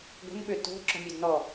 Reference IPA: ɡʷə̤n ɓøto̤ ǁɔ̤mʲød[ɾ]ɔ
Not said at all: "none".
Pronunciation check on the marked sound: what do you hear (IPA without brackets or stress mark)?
n